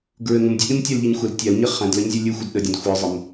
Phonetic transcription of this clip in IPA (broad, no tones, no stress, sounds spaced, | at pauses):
ɡ ɹ ɘ ŋ ə̃ m dʲ ɘ ɗ ĩ m tʲ æ l ʎ i ɲ xʷ ə l tʲ æ l ɲ ɘ χ æ̃ d l ə ɲ zʲ ɘ lʲ ɨ xʷ ə d ɗ ə dʲ õ d xʷ ɨ zˤ ɘ m